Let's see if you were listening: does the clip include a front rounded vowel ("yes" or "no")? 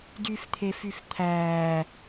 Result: yes